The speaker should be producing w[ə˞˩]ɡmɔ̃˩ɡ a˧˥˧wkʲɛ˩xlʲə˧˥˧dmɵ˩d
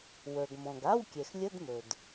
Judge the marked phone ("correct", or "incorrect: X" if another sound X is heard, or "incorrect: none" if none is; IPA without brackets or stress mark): correct